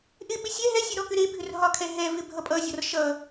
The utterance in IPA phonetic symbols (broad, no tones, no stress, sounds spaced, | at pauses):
ʔ ɪ ɓ ɪ sʲ ɛ ɦ ɛ sʲ e ɾ ɔ k ʏ ɾ e bʱ ʏ r ɦ ɒ kʰ ɛ ɦ ɛ v ɪ bʱ ʌ pʼ ʌ zʲ ɒ r ʃ ʌ